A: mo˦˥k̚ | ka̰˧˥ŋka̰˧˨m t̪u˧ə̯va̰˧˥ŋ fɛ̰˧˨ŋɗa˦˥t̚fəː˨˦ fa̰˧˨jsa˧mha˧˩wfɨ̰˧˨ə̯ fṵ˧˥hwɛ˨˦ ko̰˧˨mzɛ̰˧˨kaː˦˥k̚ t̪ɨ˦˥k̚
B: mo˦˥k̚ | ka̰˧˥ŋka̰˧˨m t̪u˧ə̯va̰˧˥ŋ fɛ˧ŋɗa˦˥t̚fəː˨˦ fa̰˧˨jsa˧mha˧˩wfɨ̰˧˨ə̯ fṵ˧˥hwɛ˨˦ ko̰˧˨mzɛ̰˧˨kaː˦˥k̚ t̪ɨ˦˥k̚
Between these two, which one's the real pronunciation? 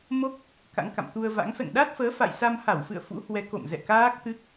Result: A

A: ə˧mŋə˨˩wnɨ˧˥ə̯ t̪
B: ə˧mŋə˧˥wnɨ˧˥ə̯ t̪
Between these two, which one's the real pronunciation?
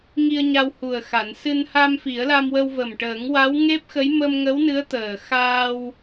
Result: B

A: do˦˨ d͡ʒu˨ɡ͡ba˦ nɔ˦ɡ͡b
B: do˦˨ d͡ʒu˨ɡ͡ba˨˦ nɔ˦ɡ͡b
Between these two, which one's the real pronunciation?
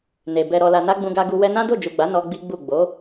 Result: B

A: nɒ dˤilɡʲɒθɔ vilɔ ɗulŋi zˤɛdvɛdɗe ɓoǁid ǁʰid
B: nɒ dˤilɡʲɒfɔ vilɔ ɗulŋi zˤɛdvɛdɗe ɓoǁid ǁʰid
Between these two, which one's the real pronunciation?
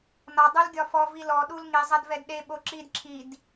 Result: B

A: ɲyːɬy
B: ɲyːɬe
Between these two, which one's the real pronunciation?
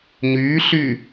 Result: A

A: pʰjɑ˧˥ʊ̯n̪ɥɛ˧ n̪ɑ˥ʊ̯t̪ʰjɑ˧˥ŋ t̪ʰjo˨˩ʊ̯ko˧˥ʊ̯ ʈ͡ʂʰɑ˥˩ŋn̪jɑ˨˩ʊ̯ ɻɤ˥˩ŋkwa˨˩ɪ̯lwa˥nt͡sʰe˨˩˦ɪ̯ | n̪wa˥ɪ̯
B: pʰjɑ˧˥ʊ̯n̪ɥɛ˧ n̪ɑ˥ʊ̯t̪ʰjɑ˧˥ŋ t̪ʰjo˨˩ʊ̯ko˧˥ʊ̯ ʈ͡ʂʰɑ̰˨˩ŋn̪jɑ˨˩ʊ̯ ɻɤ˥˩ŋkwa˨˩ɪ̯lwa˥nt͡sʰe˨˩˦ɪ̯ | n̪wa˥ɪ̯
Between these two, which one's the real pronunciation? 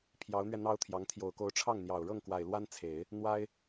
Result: A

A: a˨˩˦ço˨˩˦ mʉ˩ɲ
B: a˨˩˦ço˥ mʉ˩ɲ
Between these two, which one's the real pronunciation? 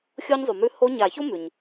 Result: B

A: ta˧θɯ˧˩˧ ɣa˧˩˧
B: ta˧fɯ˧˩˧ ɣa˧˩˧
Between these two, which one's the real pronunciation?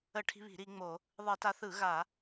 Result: A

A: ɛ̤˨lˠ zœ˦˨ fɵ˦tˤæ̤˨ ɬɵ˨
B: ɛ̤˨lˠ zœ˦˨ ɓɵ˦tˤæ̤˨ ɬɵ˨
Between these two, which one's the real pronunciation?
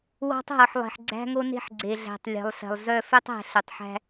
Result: A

